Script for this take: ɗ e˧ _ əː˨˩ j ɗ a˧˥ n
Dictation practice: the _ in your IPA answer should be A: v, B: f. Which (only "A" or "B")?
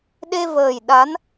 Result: A